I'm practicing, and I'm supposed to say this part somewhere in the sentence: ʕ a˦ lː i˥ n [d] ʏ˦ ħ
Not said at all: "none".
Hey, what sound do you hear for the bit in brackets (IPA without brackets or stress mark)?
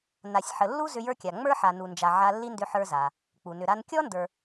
d